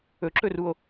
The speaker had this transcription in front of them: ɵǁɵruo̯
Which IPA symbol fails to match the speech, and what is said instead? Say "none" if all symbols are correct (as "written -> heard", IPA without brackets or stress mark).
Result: none